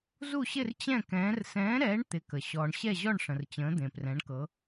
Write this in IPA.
z u˥˨ ɕ ɪ˥˨ r t͡ɕ ɛ̃˥˨ k ɛ̃ː˨˥ r s ɛ̃ː˨˥ ɾ ɛː˨˥ ɳ t̪ ɪ˨˥ k ə˨ ɕ ɔː˨ ɳ ɕ ɛ˥˨ ʑ ɔ˥˨ ɳ ʂ ə̃˨ r t͡ɕ ə̃ː˨˥ d̪ ẽ˨ p r ɛ̃˨˥ ɳ k ɤ˨˥

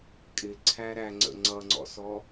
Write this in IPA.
kʼ ɪ ǀʰ æ ɾ æ ŋ͡ǀ ə̰ ŋ͡ǀ ʌ ŋ͡ǀ ɔ̰ s ɔ

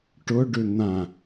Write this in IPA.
ʈ ʊ ɖ ʏ n̪ ã

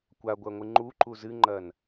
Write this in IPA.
kʷ a ɡʷ ɐ ŋʷ ɨ ŋ͡ǃ u ǃ u z ɨ ŋ͡ǃ ɐ n

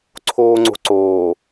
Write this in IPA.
ǀʰ oː ŋ͡ǀ o̤ ǀ oː

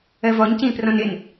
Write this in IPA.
ɜ v ɔ ɲ c ĩː p r ɔ̃ n ɪ n

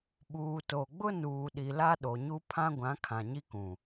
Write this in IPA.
ɓ uː˨ t o˨ ɡ͡b ʊ˦ n uː˨ ɗ i˨ l a˦ ɗ o˨ ɲ u˦ pʰ ã˦ ɡʷ ã˨˦ kʰ ã˨ ɲ i˦ k ũ˨

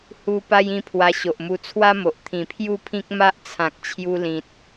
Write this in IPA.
h u˧ p a˦ j ĩ˥˧ pʰ w a˧ ɕ o˨ ʔ m u˧ t͡sʰ w a˦ m o˨ ʔ t̪ʰ ĩ˨˩ pʰ j u˥˧ pʰ ĩ˦ k̚ m a˦ ʔ t͡sʰ ã˨ k̚ t͡ɕʰ j u˧ l ĩ˨ t̚

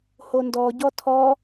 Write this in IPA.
h o n d ɔ ɟ ɔ tʰ ɔ

